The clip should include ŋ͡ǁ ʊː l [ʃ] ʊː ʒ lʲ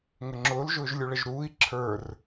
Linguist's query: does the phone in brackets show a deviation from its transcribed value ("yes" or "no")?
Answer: yes